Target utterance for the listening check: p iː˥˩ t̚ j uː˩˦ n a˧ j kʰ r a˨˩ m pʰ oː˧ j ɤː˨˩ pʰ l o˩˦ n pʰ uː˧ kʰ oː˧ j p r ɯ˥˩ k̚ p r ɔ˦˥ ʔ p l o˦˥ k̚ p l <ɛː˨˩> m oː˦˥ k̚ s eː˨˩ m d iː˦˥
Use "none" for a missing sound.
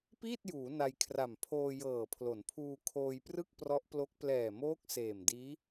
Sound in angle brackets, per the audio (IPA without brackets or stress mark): ɛː˨˩